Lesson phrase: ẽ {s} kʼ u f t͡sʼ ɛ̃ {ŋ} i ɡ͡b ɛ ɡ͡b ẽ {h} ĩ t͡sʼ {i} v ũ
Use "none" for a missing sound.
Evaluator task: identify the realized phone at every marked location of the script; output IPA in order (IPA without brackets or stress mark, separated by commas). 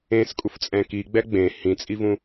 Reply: s, k, h, i